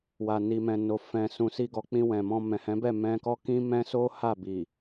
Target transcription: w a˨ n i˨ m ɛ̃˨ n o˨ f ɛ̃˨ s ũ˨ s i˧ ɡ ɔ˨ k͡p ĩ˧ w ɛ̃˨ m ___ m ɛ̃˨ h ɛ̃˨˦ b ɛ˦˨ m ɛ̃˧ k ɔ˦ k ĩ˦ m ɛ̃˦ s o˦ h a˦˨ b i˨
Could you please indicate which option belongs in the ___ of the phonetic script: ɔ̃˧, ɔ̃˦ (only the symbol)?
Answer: ɔ̃˧